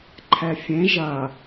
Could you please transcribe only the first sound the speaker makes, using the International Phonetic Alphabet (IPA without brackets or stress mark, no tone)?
ǃʰ